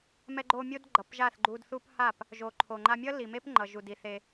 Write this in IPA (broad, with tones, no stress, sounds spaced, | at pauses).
m ɛ˧ ɡ͡ǃ o˧ mʲ o˦ d ɡ͡ǃ ʌ˨ p ʒ a˦˨ θ ɡ͡ǃ u˧ d θ u˦ p h a˦˨ p | ʒ o˨ ǃʰ o˨ ŋ͡ǃ a˧ mʲ ʌ˦ l i˨ m e˦ p ŋ͡ǃ ʌ˨ ʒ u˨ d i˨ θ e˧